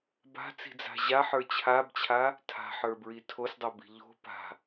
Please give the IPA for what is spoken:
b a̤ t͡s i̤ d͡z a̤ ʑ a ħ ə˞ t͡ɕʰ a b t͡ɕʰ a | tʰ a̤ ħ ə˞ b ɹ i tʰ o s dˤ o b i̤ ʎ o̤ p a̤

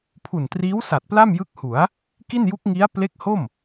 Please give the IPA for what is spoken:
pʰ u˨˩ n t r iː˦˥ w s a˨˩ t̚ p l a˥˩ m j ɯ˦˥ k̚ h u˩˦ a̯ | k i˥˩ n j u˦˥ k̚ ŋ i˦˥ a̯ p l e˦˥ k̚ h o˥˩ m

